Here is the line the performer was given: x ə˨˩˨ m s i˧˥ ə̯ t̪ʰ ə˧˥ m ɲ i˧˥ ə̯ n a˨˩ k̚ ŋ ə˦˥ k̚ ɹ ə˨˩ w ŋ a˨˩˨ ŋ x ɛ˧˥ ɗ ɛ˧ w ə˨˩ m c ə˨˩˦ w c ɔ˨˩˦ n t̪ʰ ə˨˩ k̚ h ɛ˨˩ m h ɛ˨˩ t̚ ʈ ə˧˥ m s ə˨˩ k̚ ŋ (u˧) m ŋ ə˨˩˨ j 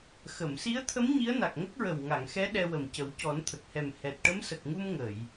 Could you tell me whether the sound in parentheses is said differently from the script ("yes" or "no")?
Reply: no